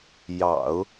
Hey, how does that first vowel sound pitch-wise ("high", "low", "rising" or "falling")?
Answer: low